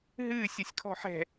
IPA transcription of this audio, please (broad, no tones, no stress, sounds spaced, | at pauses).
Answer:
ɦ ɨː sʲ ʌ sʲ kʰ ɔ̤ ħ ɛ̤